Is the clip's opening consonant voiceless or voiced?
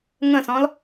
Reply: voiced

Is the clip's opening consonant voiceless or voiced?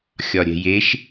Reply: voiceless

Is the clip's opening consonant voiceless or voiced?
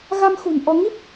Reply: voiced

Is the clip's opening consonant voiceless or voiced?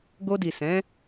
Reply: voiced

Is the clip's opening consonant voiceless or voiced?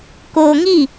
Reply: voiceless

